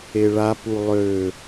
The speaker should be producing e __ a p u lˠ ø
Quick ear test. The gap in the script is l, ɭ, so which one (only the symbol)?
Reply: ɭ